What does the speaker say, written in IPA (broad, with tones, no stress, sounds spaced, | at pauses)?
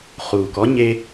χ uː˨ k ɔ˦ ɲ e˧